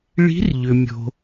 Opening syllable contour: rising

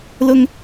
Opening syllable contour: low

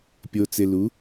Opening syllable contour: low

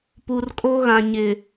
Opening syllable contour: low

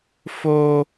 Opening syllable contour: high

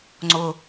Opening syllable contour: low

